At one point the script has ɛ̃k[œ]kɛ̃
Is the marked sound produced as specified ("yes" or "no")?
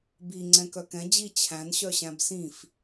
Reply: yes